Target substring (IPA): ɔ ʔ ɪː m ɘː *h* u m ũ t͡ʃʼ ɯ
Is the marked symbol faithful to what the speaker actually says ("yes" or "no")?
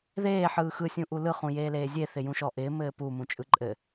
no